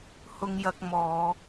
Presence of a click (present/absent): absent